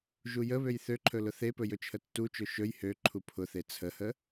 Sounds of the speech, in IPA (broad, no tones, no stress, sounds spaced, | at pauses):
ʒ u j ə β ø j θ ø ǃʰ ɵ l ʊ θ e p ɵ j ɵ t͡ʃʰ ə tː u t͡ʃ ɵ ʃ ɵ j h ø ǃʰ u pʰ ʊ θ e t͡sʰ ə h ə